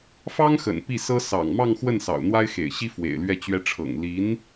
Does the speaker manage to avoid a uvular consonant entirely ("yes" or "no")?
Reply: yes